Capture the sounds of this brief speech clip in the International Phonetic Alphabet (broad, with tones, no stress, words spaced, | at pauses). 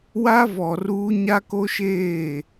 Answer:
wa˦vɔ˨ruː˦ ɲa˦ko˦ʃeː˦˨